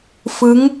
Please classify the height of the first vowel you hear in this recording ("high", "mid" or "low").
high